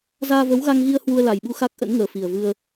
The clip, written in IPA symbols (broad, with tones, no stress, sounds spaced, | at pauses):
z aː˧ v ə˨˦ w ɣ a˧ ŋ ɣ i˧ ə̯ h w u˧ ə̯ l a˨˩ j ɓ u˧ x a˦˥ k̚ ʔ ə̰˧˥ n ŋ əː˨˩ f i˨˩ ə̯ v ɨ˧ ə̯